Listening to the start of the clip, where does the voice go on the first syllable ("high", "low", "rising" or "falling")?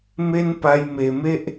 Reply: high